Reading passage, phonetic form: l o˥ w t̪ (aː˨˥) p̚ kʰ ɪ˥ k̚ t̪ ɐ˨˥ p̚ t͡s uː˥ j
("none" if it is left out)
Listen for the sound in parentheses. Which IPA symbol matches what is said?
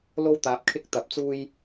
aː˨˥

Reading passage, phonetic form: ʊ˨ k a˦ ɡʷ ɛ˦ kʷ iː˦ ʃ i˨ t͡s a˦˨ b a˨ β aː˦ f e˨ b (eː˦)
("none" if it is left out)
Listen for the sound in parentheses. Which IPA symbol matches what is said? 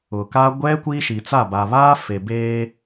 eː˦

